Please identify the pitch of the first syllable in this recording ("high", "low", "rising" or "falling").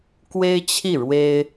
high